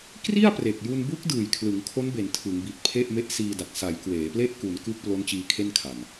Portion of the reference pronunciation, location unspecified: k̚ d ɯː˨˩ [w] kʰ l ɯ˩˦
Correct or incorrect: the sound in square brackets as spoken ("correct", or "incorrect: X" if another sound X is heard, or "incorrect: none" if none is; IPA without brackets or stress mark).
incorrect: j